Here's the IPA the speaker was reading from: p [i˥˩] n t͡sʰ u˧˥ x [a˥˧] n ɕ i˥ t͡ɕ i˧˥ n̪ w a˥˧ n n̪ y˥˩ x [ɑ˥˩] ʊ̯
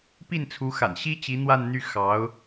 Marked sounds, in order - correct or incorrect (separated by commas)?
correct, incorrect, incorrect